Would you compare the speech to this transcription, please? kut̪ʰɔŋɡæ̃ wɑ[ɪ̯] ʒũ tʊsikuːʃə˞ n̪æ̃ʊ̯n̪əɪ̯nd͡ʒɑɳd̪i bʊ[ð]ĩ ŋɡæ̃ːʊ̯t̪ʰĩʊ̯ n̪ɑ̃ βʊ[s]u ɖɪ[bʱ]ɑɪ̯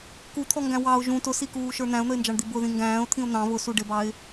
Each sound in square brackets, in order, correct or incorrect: incorrect: ʊ̯, correct, correct, incorrect: b

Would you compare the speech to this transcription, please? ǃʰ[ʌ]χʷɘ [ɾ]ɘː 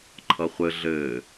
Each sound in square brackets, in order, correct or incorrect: correct, incorrect: ɮ

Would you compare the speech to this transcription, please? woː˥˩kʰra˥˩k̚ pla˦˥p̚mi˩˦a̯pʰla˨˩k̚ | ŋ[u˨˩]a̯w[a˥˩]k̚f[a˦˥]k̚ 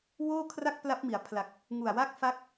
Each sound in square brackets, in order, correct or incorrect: correct, correct, correct

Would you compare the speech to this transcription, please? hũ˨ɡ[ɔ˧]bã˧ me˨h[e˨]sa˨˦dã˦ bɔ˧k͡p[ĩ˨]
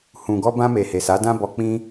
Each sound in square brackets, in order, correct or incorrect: correct, correct, incorrect: ĩ˦

